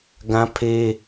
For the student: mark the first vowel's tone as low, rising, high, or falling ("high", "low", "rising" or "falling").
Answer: high